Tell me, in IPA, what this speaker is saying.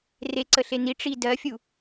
r e ǀ ə ɬ e n i ʈ͡ʂ i d ɜ fʲ u

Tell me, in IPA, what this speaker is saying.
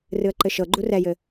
r ɨ ə̯ ǃ ɘ ʃ ɤ ɡ͡ǃ u r ɛ j ɘ

